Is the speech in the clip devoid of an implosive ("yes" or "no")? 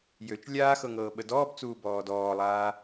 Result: no